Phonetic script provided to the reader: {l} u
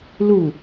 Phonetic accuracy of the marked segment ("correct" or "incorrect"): correct